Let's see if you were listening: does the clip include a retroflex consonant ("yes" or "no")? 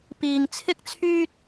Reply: no